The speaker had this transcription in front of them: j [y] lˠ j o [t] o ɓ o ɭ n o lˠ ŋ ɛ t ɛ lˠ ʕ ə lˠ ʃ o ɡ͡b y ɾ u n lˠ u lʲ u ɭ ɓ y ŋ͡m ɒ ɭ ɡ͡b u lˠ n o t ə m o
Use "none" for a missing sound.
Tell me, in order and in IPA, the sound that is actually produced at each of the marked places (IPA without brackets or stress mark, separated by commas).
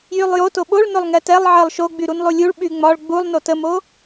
y, t